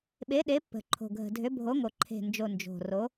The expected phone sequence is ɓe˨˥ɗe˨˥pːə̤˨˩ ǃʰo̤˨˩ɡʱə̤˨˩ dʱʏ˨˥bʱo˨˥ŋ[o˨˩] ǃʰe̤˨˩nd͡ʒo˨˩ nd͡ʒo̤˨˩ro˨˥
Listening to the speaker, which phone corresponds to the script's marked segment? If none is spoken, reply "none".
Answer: o˨˩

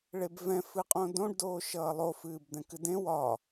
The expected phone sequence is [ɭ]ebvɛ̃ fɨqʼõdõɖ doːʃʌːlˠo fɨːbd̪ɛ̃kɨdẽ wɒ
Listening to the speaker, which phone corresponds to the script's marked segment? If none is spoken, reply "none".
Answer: ɭ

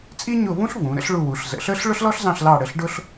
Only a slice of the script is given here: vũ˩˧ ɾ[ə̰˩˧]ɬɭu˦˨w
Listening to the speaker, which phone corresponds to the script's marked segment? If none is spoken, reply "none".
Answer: ə̰˥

